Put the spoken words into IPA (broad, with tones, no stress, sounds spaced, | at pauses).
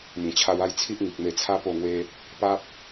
m ĩ˨˩ t͡ɕʰ a˧ w a˥˧ j t͡sʰ i˦ ʔ ŋ i˨ k̚ m e˧ t͡sʰ a˦ p o˥˧ ŋ w e˦ | p a˦ p̚